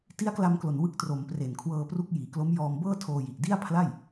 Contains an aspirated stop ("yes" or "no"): yes